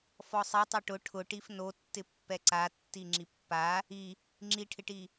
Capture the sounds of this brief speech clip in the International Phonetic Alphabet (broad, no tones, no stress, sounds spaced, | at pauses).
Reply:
f ɔ sˤ i tˤ o ʈ ʊ ʈʰ ʊ ʈ i f n o tː ɪ pː ɛ ǀ a tː i ŋ͡ǁ i pː a | i | ŋ͡ǁ i ʈʰ ɪ ʈ i